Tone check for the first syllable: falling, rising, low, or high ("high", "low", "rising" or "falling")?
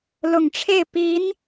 low